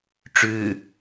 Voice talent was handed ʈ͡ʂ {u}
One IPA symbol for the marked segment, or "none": ʉ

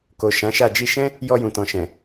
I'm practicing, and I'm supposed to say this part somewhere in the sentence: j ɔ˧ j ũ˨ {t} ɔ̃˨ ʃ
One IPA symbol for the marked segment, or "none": t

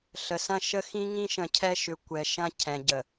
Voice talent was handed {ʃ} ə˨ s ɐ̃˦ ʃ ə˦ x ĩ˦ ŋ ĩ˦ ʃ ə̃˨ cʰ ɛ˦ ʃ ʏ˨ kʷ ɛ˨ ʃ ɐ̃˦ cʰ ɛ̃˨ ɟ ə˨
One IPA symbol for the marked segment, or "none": ɬ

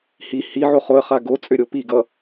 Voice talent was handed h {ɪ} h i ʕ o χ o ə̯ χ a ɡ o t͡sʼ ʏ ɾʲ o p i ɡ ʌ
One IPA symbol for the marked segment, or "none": i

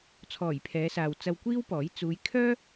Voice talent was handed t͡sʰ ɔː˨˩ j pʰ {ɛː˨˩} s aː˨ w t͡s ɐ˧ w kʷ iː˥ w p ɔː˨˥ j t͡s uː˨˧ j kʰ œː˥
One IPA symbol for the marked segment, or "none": ɛː˨˧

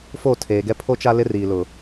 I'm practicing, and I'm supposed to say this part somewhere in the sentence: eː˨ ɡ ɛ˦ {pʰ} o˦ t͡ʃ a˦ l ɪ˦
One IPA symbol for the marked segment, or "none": pʰ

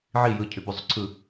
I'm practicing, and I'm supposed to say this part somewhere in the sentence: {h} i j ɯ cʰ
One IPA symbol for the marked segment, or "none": ʕ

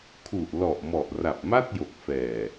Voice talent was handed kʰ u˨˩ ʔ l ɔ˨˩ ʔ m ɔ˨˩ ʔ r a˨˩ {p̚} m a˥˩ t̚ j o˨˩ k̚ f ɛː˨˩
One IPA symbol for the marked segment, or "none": p̚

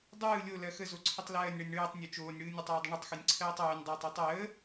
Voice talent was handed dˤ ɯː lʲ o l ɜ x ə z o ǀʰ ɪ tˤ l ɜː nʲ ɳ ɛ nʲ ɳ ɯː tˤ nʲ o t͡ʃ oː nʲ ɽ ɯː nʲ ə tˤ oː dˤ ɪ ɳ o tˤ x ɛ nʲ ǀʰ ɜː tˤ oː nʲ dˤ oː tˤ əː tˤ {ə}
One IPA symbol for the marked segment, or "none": əː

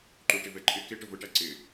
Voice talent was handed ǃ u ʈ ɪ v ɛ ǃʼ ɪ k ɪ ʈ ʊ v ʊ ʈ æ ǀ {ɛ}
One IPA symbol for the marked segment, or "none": ɪ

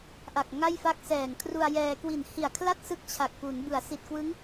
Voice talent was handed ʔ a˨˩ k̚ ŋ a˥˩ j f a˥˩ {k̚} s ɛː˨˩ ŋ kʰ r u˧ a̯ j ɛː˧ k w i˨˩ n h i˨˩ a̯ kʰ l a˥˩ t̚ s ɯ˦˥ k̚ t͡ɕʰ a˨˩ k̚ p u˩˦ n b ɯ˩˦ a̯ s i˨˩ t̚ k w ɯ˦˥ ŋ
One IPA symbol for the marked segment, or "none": k̚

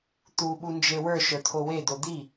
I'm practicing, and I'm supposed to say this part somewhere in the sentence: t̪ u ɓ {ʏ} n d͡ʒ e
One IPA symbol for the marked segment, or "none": u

